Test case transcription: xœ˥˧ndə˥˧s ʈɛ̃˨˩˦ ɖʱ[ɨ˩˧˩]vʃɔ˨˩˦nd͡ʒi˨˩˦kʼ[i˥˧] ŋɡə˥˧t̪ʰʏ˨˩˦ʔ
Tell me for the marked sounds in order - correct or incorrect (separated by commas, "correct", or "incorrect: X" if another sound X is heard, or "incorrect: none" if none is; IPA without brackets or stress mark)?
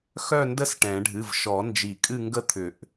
correct, incorrect: ɨ˥˧